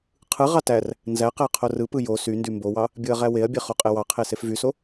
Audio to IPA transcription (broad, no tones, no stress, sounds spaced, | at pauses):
qʰ ɯ ʁ ɑ t æ r | n z æ q æ qʰ o r ɯ p ɯ j o s y n d y m b o w ɑ | bʲ ɯ ɐ̯ ʁ æ w e ɐ̯ bʲ e χ o qʼ e w ɑ qʰ e s e f v y s o